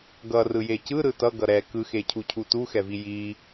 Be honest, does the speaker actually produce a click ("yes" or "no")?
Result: no